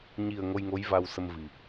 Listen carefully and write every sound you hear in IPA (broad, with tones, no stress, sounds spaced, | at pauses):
ɲ i˨˩ ə̯ ŋ o˧ j ŋ o˧˥ j v a˧ w s ə˧ m v i˨˩